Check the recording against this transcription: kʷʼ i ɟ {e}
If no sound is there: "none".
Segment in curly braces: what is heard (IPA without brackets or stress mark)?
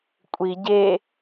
e